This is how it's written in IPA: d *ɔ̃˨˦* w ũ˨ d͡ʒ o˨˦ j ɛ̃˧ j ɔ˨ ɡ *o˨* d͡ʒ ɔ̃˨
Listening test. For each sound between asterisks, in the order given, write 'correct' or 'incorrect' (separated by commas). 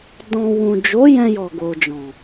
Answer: incorrect, correct